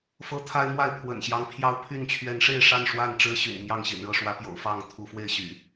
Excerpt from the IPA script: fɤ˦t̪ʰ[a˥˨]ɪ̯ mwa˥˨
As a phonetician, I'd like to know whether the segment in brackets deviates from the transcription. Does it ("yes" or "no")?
yes